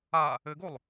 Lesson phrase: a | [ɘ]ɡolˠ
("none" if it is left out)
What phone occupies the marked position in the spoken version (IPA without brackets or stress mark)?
ɘ